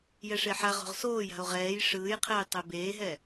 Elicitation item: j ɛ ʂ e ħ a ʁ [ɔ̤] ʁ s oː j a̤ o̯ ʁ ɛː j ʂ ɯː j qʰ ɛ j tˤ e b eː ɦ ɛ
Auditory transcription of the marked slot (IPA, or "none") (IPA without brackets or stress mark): o̤